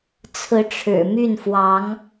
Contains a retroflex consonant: yes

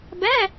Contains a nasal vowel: no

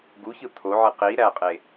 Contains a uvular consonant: yes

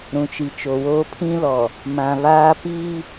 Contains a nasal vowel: yes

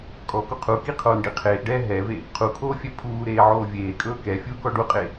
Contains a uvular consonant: yes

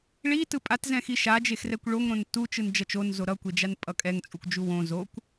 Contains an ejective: yes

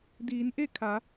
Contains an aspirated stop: yes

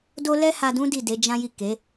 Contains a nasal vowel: yes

